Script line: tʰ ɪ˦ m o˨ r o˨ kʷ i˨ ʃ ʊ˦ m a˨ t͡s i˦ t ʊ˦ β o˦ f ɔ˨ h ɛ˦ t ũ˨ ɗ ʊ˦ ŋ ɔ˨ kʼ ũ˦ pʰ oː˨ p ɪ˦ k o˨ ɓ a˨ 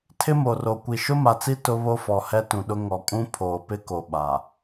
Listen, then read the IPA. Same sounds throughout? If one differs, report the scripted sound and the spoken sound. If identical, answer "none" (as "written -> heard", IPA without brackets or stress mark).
none